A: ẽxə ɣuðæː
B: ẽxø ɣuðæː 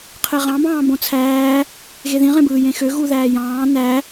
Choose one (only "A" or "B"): B